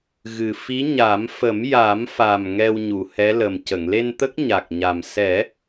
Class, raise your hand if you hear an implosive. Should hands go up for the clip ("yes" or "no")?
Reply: no